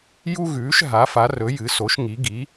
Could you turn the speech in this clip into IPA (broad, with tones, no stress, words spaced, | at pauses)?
ju˥ɣʉː˨˥ʃ ɦa˨˥fa˨˥rɵ˨˥ jɨ˨˥so˨˥ʃŋi˨˥ ɡi˨˥